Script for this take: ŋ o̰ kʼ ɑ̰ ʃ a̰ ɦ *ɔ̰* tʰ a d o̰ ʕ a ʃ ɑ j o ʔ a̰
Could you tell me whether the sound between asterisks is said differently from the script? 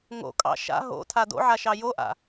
yes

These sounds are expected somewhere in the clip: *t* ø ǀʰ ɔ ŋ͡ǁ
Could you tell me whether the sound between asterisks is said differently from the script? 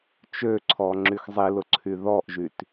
yes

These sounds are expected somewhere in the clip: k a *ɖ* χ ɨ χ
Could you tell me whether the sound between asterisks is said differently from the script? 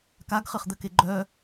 yes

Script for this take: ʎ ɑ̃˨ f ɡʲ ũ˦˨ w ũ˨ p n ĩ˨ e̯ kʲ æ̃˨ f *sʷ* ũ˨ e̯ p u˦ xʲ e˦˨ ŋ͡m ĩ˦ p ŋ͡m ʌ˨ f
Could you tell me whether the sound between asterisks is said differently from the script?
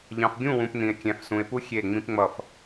yes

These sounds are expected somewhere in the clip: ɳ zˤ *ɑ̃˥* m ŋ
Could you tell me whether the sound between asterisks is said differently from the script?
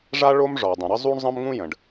yes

